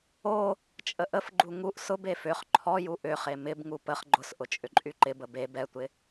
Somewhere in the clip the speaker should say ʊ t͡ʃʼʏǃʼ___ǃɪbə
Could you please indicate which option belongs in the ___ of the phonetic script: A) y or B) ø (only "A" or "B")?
A